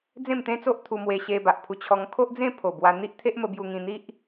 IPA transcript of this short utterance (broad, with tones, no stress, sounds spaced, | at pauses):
d͡z ẽ˥˧ m t̪ ẽ˦ t͡s o˦ ʔ t̪ʰ u˧ m w e˧ ɕ e˧ b a˨ ʔ pʰ u˧ t͡ɕʰ ɔ˧ ŋ kʰ o˦ ʔ d͡z ẽ˥˧ pʰ o˨˩ b w a˧ n̪ i˦ ʔ t̪ʰ e˦ ʔ m ə˧ b j u˧ ŋ ĩ˧ n̪ i˦ ʔ